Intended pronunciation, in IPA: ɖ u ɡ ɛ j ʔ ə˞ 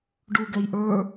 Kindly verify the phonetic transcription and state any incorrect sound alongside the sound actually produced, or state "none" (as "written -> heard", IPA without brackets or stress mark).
none